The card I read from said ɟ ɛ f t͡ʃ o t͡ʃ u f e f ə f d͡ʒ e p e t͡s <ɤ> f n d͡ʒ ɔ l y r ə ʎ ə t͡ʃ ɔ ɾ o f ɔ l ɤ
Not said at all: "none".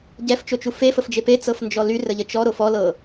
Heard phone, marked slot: ɤ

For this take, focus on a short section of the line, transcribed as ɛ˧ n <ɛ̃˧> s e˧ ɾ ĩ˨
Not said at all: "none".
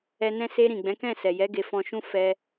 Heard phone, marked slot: ɛ̃˧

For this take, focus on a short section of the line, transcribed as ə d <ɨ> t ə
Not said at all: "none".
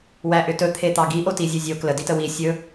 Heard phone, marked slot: i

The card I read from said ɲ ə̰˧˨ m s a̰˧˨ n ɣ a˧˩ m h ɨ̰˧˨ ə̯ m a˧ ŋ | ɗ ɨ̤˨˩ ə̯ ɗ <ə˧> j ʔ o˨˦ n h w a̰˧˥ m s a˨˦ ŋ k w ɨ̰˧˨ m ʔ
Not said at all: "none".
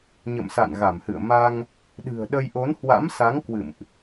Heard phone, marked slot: ə˧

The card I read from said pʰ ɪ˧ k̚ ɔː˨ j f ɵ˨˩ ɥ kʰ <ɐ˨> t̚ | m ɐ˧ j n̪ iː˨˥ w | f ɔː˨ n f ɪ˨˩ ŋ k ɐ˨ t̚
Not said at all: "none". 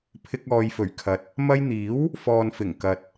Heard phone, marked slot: ɐ˨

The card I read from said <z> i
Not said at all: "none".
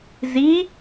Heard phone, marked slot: z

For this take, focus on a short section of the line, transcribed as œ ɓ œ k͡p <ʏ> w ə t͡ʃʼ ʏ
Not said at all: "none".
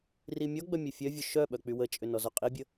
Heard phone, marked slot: y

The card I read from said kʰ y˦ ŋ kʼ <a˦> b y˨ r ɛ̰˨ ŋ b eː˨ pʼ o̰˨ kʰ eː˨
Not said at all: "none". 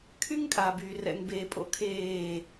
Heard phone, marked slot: a˨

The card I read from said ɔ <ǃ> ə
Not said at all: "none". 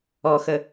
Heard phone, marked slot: x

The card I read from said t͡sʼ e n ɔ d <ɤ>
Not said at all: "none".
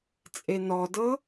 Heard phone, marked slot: ɤ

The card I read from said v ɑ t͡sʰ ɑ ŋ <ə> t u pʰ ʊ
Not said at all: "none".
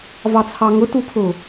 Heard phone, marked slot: ʊ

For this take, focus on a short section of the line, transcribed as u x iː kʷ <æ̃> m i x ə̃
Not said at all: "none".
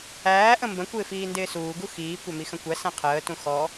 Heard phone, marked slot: æ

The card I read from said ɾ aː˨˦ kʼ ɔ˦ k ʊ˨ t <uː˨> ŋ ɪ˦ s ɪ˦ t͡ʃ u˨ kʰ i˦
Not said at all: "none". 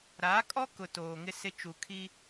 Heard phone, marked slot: oː˨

